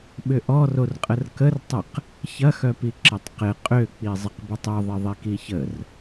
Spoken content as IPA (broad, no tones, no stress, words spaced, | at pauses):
ɓʏʔɔrorqʼər kərtˤəq | çɐxœpi ǁətˤqɪ qʼøk͡pi zˤɪqbətˤœ ðˤɪðˤikiçər